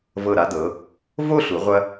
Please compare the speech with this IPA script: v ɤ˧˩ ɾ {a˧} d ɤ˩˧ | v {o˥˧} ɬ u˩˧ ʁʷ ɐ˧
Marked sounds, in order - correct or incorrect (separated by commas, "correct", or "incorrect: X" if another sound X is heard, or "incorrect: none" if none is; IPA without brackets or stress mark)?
correct, correct